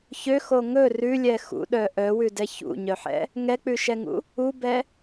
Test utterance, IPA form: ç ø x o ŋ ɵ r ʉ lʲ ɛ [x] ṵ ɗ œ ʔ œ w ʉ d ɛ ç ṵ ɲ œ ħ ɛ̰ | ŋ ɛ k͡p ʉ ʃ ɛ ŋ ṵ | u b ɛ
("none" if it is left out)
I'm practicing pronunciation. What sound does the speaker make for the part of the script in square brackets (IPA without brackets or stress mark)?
x